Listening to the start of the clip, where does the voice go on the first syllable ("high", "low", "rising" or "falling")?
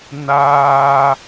high